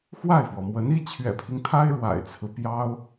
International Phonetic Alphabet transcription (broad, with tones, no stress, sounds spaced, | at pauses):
x w a˥˩ ɪ̯ f w ɔ˩ m w ə˧˥ n i˥ t͡ɕʰ ɥ ɛ̰˨˩ pʰ i˦ ŋ t̪ʰ a˥ ɪ̯ ɻ w a̰˨˩ ɪ̯ t͡sʰ ɹ̩˦ p j ɑ˥ ʊ̯